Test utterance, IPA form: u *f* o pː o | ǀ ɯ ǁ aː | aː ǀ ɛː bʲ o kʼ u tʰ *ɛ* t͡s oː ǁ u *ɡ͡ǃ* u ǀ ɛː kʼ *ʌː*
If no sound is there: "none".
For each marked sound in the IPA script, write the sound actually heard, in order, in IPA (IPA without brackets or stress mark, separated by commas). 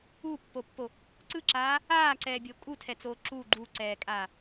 pː, ɛ, ɡ͡ǃ, aː